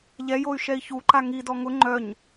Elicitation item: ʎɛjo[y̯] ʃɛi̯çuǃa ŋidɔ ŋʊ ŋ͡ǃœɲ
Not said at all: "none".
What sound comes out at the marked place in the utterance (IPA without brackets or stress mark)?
y̯